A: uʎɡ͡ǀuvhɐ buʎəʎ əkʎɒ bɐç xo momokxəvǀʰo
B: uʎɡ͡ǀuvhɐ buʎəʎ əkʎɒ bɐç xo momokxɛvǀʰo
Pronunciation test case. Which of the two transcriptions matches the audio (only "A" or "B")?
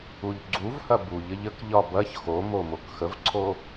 A